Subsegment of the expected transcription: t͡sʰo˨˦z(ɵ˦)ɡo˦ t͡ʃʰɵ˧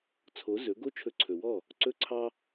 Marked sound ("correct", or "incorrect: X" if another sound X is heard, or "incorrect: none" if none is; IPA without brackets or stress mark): incorrect: ɵ˨˦